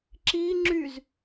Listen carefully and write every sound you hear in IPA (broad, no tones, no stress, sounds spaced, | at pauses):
ǁ i ŋ͡ǁ y z